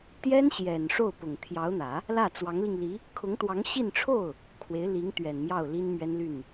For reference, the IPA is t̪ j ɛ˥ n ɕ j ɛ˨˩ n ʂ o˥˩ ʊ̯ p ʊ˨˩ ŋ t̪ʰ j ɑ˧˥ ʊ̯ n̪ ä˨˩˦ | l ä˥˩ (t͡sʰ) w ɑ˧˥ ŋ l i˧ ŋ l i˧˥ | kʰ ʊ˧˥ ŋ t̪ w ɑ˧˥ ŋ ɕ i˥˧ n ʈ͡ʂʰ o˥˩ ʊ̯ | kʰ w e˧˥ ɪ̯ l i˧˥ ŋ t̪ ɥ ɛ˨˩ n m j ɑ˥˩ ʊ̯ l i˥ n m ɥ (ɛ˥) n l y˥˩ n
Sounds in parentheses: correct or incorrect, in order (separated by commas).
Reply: incorrect, correct